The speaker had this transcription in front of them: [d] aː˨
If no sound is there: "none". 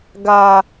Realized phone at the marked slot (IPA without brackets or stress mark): ɡ